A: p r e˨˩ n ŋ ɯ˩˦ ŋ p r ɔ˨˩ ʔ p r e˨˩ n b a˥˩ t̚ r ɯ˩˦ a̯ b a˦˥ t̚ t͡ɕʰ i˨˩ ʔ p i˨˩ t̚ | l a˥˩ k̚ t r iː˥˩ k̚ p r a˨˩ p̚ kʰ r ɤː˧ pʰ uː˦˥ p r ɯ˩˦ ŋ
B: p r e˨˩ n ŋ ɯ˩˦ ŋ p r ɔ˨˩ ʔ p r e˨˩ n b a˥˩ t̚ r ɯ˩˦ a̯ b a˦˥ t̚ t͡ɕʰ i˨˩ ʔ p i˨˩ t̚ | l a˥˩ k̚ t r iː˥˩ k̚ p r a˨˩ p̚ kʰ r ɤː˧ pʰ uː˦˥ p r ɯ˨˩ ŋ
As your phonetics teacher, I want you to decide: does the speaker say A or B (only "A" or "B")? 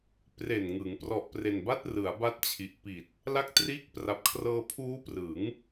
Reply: A